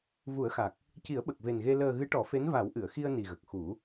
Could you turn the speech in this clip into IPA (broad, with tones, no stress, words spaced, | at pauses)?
vu˨˩˦ə̯xa˨˩k̚ | ci˨˩˦ə̯ɓə˨˩k̚ve˨˩nɣe˧ ləː˨˩ ɣɨ˧˥ʈɔ˨˩˦fe˧˥n va˨˩˦wʔɨ˨˩˨ə̯xi˧ə̯ ni˨˩ɣə˨˩k̚xu˨˩˦